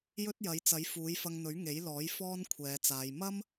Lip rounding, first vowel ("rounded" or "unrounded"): rounded